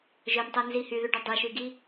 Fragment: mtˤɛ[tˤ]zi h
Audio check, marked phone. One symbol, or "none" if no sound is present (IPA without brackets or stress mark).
n